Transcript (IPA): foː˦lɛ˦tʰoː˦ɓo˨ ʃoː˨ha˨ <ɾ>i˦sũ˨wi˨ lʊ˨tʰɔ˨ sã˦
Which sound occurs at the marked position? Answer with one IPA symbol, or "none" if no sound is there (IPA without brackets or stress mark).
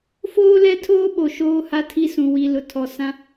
tʰ